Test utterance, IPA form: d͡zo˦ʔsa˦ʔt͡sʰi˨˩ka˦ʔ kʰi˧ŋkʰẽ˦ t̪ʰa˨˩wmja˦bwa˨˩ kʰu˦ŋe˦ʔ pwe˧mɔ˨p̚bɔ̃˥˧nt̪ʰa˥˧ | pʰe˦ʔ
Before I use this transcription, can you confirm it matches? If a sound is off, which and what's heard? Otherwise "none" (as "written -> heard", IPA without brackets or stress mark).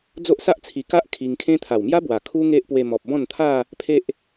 none